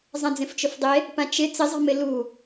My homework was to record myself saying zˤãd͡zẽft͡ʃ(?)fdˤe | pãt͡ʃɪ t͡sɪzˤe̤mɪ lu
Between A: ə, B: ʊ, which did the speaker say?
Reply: B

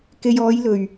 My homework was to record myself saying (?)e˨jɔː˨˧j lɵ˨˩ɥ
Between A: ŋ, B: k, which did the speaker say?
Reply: B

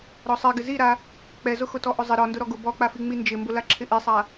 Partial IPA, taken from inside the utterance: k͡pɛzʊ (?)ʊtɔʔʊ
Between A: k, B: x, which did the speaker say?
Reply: B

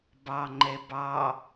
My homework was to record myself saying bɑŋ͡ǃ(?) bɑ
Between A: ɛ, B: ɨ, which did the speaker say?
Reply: A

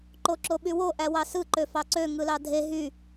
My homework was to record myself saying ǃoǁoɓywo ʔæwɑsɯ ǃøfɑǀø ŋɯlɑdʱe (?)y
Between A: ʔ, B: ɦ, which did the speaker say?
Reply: B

